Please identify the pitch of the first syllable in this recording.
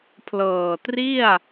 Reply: low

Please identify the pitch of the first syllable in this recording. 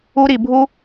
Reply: high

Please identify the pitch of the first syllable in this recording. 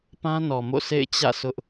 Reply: high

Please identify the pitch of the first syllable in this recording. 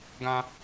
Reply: high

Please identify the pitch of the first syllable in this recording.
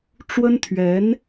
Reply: high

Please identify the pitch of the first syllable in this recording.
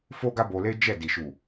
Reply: high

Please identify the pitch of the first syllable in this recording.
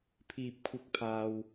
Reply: low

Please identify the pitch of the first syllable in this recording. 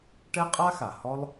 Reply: high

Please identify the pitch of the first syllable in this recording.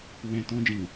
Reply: low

